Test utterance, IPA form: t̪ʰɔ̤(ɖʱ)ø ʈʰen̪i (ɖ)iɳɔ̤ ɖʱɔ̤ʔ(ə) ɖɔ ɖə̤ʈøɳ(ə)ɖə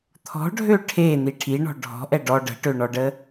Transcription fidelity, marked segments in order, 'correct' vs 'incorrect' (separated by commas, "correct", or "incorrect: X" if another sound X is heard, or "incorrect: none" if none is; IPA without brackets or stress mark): correct, incorrect: ʈʰ, incorrect: ɛ, incorrect: ɔ